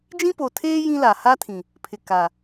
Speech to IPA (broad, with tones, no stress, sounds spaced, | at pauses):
d͡ʒ ĩ˦ p o˨ tʰ eː˦ j ĩ˦ l a˨ h a˦ tʰ ĩ˨ | pʰ ɪ˨ k a˨